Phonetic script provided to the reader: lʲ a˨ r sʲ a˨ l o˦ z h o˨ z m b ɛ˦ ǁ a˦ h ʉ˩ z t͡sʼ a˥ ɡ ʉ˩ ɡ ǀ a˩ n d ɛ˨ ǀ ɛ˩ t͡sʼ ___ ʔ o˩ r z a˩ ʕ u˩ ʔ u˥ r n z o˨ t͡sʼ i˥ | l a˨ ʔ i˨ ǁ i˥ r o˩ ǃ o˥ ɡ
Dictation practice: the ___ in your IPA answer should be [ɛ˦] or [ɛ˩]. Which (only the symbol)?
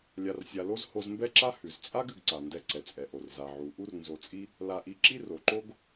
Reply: ɛ˩